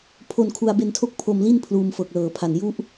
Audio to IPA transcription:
pʰ o˧ n kʰ u˧ a̯ b e˧ n tʰ o˥˩ k̚ pʰ o˧ m l i˥˩ n pʰ l uː˧ m f ɤː˨˩ k̚ l ɤː˨˩ pʰ a˨˩ n j u˥˩ ʔ

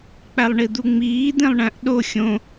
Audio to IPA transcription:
k͡p æ lˠ ɳ i d̪ u ŋ͡m iː d̪ ĩ lˠ ɳ æ̃ ʔ ɗ o xʲ õ

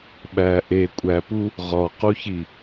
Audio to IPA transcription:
ɓ æ ʔ e kʷʼ æ p u | ʁ ɒ q u ç i

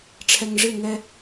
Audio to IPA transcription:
ʈ͡ʂʰ ɛ˨ ŋ ʐ ɪ˦˨ ŋ ɛ˦

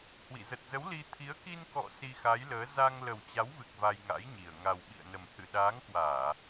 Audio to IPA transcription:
h w ḭ˧˨ z ə˨˩ t̚ z ə˨˦ w l i˧ t̪ʰ i˨˦ ə̯ k i˧ n k ɔ̰˧˨ s i˧ x a˨˦ j l əː˨˦ z a˧ ŋ l ə˨˩ w t͡ɕ a˨˦ w v ɨ˨˩ k̚ v a˧ j ŋ a̰˧˥ j ɲ i˨˩ ə̯ ŋ a˨˩ w ɓ ḭ˧˨ ə̯ n ə˨˩ m h ɨ̰˧˨ ɗ aː˨˦ ŋ k w aː˧˩˨

